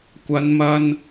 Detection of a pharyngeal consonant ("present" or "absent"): absent